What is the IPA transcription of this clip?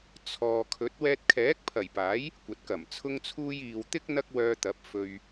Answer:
t͡sʰ ɔː˨ kʰ ɵ˨˥ t̚ w ɛː˧ t̚ kʰ ɛː˨˥ k̚ pʰ ɐ˨˩ j p aː˨˥ j | kʷ ɐ˨˥ t̚ k ɐ˨˩ m t͡sʰ ʊ˥ ŋ t͡sʰ uː˥ j iː˨ w t̪ ɪ˥ k̚ n̪ ɐ˥ k̚ w œː˧ t̪ ɐ˨˥ p̚ f ɵ˧ ɥ

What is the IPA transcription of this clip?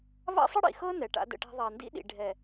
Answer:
β a̰˦ sˤ ə˦ ɽ ḭ˨ x ɤ˦ n ɛ˨ ʈ a̰˦ d ə̰˦ ʈ æ̤˦ ðˤ a˨ n d ḭ˦ ɗ ḭ˨ ɖʱ ɛ˨

